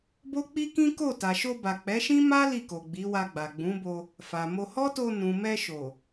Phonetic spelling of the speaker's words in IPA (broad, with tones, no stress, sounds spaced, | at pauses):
b o˦ k͡p i˦ k ĩ˦ k o˦˨ t a˨ ʃ o˧ b a˨ k͡p ɛ˨˦ ʃ ĩ˦ m a˦ l i˦˨ k o˨ ɡ͡b i˨˦ w a˧ ɡ͡b a˨ ɡ͡b ũ˨˦ b o˧ | f a˨ m o˧ h ɔ˦ t o˧ n ũ˨ m ɛ˧ ʃ o˨